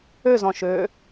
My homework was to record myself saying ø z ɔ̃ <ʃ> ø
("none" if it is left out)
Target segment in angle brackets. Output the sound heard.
ʃ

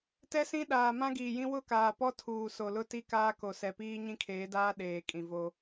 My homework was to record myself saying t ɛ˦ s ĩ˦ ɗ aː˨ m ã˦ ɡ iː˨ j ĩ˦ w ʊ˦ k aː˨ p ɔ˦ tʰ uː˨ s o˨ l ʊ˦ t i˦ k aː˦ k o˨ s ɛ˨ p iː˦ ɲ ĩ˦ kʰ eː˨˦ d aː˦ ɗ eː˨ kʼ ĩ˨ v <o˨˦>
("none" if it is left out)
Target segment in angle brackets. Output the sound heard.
o˦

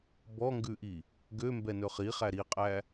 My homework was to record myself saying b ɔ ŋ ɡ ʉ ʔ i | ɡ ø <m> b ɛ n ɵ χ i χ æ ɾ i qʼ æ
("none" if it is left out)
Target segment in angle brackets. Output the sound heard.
m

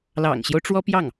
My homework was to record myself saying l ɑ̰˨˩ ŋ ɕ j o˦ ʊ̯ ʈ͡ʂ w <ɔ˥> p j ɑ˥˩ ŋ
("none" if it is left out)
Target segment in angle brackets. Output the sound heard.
ɔ˥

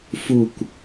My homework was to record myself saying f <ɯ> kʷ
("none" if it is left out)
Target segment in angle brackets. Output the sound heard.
u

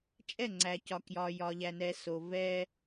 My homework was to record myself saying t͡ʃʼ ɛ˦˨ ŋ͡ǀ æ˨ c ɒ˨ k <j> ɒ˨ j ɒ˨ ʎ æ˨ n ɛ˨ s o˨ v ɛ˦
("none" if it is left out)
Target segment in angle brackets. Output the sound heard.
j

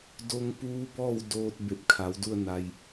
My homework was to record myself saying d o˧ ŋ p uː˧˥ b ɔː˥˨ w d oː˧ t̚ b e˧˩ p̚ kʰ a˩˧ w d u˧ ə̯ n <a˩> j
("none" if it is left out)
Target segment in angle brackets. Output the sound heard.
a˧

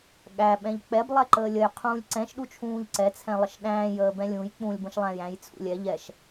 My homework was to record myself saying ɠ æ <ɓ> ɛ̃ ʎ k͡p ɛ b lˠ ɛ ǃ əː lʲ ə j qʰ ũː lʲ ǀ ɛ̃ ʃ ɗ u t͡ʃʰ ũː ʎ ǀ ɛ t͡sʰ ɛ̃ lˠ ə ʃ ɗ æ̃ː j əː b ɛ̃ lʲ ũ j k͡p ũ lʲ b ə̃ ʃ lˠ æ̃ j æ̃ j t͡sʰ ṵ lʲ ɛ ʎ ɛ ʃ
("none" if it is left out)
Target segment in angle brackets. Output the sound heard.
ɓ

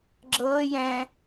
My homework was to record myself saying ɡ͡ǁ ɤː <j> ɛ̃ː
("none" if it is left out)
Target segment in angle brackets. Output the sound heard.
j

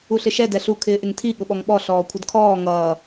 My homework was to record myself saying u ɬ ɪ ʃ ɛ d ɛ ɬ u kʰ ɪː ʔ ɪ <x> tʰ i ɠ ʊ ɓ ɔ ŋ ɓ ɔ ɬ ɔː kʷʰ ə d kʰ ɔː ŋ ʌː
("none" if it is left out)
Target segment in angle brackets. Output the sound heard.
ŋ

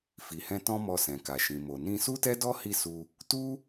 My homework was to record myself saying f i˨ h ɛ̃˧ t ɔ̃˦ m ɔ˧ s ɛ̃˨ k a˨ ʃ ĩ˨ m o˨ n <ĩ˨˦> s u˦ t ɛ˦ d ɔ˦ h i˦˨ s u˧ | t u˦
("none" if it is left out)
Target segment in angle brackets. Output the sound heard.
ĩ˧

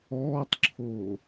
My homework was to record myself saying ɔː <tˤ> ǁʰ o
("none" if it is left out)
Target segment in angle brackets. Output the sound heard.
tˤ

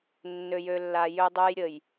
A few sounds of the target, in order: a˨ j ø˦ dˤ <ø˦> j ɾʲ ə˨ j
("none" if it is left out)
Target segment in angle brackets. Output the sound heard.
ø˦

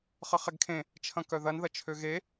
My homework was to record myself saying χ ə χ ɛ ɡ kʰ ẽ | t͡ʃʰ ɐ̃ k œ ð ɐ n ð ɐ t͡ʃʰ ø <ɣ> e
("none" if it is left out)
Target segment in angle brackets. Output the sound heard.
ɣ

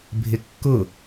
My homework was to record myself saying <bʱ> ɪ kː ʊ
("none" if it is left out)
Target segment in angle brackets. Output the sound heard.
bʱ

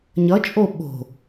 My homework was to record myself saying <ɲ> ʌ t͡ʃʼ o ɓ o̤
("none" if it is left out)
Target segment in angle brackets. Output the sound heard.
ɲ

